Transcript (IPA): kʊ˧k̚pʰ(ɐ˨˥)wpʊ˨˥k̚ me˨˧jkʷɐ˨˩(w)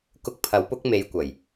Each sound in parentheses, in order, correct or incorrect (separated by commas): correct, incorrect